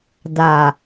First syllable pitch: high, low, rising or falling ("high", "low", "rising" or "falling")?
low